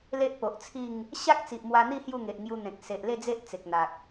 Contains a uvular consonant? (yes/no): no